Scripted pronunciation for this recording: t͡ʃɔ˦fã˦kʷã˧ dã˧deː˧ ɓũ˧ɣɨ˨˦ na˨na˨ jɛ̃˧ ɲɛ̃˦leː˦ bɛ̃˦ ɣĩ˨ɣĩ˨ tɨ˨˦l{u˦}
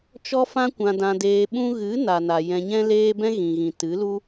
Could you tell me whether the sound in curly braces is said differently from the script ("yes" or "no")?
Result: no